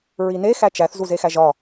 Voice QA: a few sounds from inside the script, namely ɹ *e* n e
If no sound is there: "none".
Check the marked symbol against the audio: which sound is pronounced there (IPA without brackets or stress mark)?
i